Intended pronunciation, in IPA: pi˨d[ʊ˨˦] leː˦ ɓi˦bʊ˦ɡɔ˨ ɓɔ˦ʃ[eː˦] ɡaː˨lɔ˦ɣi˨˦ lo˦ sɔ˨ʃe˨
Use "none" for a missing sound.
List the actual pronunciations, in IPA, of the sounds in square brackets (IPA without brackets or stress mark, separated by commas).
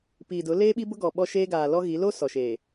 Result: ʊ˨˦, eː˦